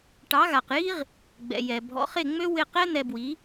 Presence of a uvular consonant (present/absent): present